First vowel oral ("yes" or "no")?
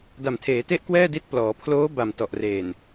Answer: yes